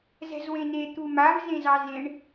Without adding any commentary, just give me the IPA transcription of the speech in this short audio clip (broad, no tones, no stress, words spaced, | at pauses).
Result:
zɛ̤zwẽne t̪umav zẽzɑzẽɳ